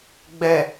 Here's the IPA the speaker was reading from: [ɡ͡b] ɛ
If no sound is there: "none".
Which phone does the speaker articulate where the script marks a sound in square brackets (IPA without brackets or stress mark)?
ɡ͡b